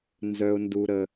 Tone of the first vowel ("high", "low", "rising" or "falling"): low